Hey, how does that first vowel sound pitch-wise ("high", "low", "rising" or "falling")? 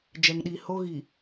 low